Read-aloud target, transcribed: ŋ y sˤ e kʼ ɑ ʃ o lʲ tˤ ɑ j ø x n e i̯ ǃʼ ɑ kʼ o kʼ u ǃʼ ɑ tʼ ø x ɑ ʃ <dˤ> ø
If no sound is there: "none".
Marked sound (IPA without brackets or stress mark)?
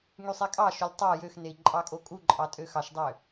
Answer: dˤ